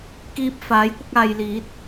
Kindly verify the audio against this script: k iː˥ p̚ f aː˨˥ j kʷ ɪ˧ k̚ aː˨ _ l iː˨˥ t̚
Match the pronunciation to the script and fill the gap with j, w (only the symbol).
j